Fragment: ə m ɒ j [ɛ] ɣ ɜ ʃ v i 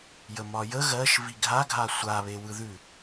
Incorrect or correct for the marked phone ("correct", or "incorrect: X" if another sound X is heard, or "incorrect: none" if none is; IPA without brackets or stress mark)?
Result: incorrect: ə